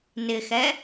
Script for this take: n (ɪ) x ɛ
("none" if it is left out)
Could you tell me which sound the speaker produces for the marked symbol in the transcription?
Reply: ɪ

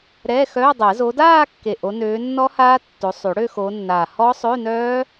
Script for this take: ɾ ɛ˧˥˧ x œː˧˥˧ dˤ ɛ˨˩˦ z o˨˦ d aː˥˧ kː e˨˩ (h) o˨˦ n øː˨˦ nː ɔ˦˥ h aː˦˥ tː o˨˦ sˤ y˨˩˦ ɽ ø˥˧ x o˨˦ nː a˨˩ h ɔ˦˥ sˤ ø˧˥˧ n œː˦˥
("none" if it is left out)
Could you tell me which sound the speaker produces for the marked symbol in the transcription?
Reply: ʔ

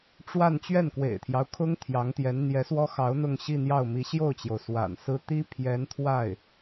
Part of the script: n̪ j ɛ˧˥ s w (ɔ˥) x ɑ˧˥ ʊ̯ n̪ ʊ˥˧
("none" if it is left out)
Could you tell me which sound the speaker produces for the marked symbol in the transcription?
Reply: ɔ˥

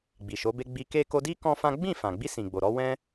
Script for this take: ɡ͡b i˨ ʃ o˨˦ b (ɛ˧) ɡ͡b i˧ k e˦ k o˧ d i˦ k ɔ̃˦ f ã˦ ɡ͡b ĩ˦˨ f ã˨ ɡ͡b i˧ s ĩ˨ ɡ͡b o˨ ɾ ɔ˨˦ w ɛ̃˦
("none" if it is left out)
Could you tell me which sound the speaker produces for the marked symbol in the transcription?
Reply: e˧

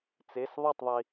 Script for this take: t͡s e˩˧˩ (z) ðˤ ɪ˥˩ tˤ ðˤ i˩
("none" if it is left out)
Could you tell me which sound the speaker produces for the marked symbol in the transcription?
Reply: s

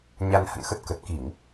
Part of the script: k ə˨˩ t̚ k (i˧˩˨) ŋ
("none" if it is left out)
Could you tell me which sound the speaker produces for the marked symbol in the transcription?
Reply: i˧˩˨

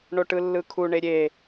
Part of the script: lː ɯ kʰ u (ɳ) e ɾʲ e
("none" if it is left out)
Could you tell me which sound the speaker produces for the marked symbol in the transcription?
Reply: ɳ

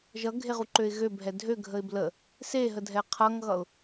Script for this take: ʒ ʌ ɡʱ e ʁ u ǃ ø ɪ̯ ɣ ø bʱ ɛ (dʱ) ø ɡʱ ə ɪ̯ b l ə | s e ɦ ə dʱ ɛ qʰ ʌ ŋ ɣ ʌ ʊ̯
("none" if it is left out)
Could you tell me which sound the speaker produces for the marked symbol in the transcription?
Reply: dʱ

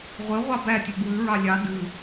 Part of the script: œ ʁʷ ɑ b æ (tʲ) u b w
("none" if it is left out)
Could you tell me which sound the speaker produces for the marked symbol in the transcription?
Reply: tʲ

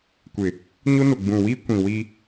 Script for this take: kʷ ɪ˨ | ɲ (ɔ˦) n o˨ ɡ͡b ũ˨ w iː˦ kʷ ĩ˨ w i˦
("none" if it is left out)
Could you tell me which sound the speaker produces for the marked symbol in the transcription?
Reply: o˦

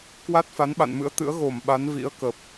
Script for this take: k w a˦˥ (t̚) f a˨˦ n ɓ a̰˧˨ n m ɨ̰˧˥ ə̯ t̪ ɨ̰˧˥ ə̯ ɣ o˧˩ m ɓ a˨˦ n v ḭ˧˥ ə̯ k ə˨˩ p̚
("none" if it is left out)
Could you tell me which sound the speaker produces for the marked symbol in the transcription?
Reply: t̚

